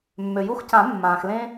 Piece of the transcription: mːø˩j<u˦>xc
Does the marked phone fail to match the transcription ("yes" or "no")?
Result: no